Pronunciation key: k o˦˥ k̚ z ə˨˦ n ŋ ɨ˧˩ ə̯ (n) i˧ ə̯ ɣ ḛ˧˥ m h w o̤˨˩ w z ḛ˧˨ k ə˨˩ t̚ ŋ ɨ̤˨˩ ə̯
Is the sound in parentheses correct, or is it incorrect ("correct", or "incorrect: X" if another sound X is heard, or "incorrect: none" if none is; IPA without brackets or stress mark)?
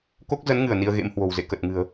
correct